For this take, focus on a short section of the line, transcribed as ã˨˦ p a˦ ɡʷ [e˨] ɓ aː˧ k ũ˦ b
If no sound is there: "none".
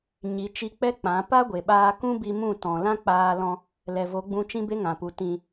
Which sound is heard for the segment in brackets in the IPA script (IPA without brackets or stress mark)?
e˨